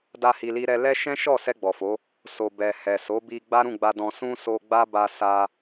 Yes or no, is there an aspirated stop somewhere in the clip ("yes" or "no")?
no